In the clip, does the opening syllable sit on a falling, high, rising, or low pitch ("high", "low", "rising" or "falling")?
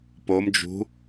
rising